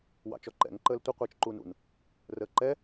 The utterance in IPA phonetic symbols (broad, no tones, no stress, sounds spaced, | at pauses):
w ɑ̰ t͡ʃ ɔ ǃ ɛ̰ ŋ ǃ əː l tʷ ə qʷ ɨː t͡ʃ ǃ uː n ṵ n | r əː ǃ ɛ